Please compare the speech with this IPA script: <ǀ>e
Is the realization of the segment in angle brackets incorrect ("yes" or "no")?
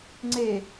yes